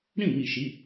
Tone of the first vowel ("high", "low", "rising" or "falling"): falling